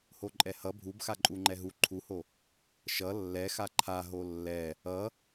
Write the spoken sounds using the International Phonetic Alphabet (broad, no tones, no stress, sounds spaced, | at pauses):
h o ǃʼ ɛ h ʌ bʱ u b x a ǃʼ u ŋ͡ǃ ɛ ɦ u ǃʰ u h o | ʃ ʌ lː ɛ x a ǃʰ a ɦ o lː ɛ | ʌ